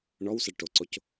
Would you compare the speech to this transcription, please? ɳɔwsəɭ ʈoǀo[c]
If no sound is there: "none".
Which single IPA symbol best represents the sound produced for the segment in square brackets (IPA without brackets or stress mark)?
c